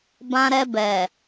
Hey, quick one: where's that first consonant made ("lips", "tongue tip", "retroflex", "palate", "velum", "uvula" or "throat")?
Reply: lips